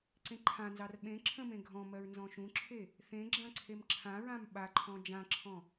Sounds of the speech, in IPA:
ǀẽǃʰãnzɑr ɓẽ ǁʰə̃mẽ ɡʱɔ̃mɜɹ nzɔ̃ʃũǁʰe | θẽ ɡ͡ǁãǀʰemǁʰãɹãm ɓaǃʰɔ̃ d͡ʒãǁʰɔ̃

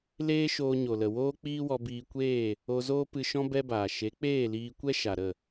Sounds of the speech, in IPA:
leː˦ ʃoː˧ɲo˨lə˨ woː˦k͡piː˦wɔ˧ biː˧kʷeː˦˨ | o˧zoː˦pɨ˧ʃɔ̃˦ bɛ˦baː˨ ʃe˨˦k͡peː˦˨liː˧kʷɛ˦ ʃa˨ɾə˦˨

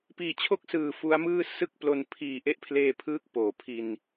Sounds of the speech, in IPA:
piː˨˩t͡ɕʰo˥˩k̚sɯː˨˩ fu˦˥a̯mɯː˥˩ sɯ˥˩k̚plo˧n pʰiː˨˩ ʔe˥˩ʔpʰleː˧pʰɯː˦˥k̚ poː˩˦pʰi˧n

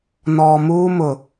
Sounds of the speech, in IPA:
nɔː˨muː˦mʊ˨

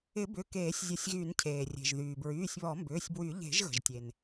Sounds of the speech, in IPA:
ɪ˨˩˦bʏ˩˧˩ keː˨˩˦sʲzʲə˨˩˦sʲɣy˨˩˦ncʰeː˩ rʲe̤˩ʒ ðyː˩bɹyː˩˧˩sʲβɔ˨˩˦mbʏː˩˧˩sʲ bwy˨˩˦ ʎe̤˨˩˦ʒɣə̤˩ʒtʲe˩n

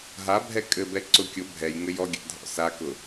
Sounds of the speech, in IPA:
ɦabʱɛ kʼɘbɛ ǀʊ kʲʊ bʱɛj ŋɘjɔɡʲa̰ dʱɔ̰sakʊ

